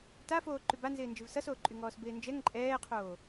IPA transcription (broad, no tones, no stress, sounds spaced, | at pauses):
t a f oː ǃ y b a n z ɪː n d͡ʒ ɪ v s ʌ s oː ǃʼ y ŋ ɔː s b ɪː n d͡ʒ ɛ ŋ ǃʼ ɛː qʰ oː